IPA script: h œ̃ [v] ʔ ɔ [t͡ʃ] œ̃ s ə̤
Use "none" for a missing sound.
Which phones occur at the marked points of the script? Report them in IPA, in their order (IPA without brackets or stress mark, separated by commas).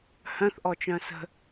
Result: θ, t͡ʃ